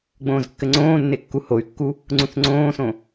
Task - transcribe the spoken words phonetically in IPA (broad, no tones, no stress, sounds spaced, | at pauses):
ɡ͡b õː z kː ɘ ŋ͡ǀ õː nː e kː u h o y̯ kː u | ŋ͡ǀ ũ θ ŋ͡ǀ õː s õ